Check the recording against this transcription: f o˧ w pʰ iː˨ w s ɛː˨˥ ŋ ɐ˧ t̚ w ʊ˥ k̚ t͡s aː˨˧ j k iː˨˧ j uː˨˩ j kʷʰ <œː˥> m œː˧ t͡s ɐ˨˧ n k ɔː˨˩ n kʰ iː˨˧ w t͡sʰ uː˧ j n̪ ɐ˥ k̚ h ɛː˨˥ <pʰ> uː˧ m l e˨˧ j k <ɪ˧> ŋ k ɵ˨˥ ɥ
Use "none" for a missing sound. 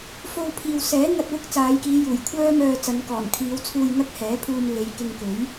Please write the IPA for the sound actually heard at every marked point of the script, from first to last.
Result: œː˥, pʰ, ɪ˧

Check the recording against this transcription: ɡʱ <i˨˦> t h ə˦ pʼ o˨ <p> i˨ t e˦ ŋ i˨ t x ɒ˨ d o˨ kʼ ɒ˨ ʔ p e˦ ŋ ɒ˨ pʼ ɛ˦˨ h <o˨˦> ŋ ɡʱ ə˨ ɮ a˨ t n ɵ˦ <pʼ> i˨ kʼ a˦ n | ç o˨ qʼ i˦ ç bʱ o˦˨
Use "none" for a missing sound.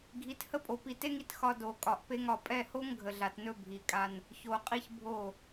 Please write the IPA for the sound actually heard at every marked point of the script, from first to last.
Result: i˨˦, p, o˦, bʱ

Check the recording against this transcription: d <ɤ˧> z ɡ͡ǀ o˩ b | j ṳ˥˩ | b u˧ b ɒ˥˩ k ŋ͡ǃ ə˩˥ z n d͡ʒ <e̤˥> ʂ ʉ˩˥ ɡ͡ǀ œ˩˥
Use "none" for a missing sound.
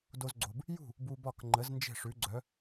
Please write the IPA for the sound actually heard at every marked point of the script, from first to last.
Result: o˧, e̤˥˩

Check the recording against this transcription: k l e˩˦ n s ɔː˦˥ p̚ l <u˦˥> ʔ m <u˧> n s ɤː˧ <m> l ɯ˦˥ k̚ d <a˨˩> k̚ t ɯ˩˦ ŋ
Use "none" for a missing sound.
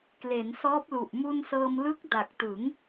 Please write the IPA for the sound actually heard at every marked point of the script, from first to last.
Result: u˨˩, u˧, m, a˨˩

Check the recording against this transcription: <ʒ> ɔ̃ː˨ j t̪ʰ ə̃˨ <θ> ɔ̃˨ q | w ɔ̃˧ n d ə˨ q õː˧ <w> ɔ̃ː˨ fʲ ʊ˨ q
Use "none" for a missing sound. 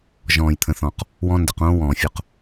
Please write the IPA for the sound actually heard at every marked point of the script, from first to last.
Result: ʒ, θ, w

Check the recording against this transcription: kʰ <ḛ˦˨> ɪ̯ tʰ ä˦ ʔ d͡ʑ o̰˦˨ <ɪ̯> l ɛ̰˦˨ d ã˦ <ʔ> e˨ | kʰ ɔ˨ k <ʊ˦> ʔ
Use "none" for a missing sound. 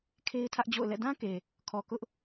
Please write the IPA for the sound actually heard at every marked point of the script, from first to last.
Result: e˦, ʊ̯, k, ʊ˦

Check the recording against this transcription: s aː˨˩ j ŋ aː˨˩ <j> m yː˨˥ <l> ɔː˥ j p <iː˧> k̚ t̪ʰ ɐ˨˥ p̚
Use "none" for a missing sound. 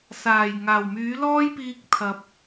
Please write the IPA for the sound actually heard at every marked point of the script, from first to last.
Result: w, l, iː˧

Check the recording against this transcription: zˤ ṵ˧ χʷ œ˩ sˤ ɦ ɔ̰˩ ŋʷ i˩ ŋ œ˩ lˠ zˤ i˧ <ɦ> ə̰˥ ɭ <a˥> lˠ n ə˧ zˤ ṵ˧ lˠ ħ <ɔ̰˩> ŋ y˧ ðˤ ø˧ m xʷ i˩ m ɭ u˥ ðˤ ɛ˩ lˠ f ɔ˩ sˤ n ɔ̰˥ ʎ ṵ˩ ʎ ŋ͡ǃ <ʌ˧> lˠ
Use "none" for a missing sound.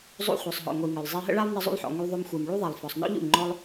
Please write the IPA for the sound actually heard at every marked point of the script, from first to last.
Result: ɦ, a˥, ɔ̰˩, ɔ˧

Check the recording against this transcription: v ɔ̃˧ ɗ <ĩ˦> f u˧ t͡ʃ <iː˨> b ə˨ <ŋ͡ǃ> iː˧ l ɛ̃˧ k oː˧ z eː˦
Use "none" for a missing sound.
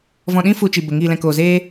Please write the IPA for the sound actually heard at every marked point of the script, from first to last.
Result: ĩ˦, i˨, ŋ

